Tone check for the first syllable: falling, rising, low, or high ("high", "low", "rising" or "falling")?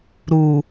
low